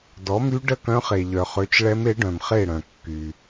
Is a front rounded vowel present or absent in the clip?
present